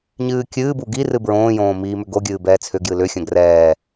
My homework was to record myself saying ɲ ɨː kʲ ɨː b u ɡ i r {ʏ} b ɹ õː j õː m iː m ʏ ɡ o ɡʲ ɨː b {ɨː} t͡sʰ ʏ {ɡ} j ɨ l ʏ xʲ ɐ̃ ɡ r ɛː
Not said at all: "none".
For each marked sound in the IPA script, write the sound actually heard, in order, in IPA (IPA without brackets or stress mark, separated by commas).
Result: ɨ, ɛː, ɡ